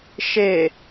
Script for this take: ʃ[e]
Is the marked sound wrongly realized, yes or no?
no